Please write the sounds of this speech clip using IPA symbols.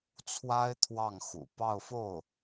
t͡sʰwa˥ɪ̯ t̪ʰwɑ˥˩ŋxṵ˨˩ pɑ˥˧ʊ̯fo˥˩ʊ̯

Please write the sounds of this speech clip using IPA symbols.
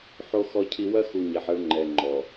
ħo˨xɔ˨cʰi˨ wɐ˦xu˨ ɲɛ˨ħɐ˦ɭ ŋ͡ǃɛ˨ŋ͡ǃɔ˨

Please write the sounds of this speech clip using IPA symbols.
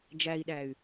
d͡ʒæi̯ɗæy̯

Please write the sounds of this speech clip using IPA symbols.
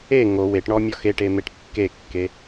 e ŋo weʈɳɔ mʲɔxeʈe meʈkːekːe

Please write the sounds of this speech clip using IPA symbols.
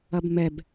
ɐbmɛb

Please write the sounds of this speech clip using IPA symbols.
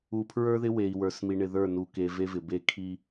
u˨pʰɹə˞˦ðɪ˦ we˨i̯ wə˞˨s mi˨ɳɪ˨ðə˞˦˨nu˨ ke˨ ve˦vɪ˨ be˦kʰi˦

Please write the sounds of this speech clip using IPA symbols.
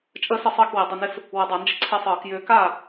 t͡ʃʼəː˦sə˧˩sˤəː˥˩kwi˩ dˤʏ˥˩nɪ˦s | wə˧˩˧dˤa˧˩˧nd͡ʒə˦ ǀʰe˦sˤɤː˧˩˧kjʏː˨˥ ka˥˩

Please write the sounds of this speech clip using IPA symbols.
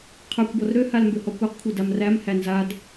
qʰə˞kʷbɔr ɾøhal mbøhɔkʷæqkʷʰə˞ damræmhæ nzad

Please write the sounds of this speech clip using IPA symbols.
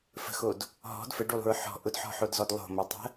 fə̤xod | ɦɔ̤d fəɖulˠṳɹ ħɔ̤ ʔʊdħɔ̤ħodzɔd lˠo̤motˤə̤

